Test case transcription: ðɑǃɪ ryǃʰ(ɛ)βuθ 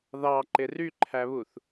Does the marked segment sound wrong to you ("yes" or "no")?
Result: yes